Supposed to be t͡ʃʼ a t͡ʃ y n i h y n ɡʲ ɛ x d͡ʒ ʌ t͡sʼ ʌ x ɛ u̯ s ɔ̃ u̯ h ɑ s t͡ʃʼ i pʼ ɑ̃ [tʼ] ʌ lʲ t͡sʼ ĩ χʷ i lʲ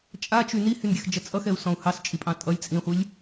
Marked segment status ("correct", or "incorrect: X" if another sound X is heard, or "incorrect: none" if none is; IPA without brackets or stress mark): correct